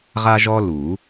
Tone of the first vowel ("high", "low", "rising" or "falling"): high